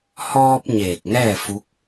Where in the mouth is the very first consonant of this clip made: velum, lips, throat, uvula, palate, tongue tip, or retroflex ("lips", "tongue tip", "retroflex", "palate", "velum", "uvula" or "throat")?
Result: throat